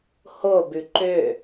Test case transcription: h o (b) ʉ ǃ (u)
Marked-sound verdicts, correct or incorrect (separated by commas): correct, incorrect